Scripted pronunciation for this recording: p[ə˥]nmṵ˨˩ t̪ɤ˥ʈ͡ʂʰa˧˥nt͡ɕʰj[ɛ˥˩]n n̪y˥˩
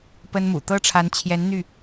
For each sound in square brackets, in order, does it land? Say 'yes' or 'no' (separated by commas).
yes, no